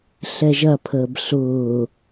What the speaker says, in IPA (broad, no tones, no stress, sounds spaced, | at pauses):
ɬ ɛ ʒ ɐ pʰ əː b ɬ ʊː